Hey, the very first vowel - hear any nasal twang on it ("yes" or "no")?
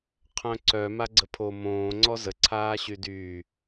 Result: yes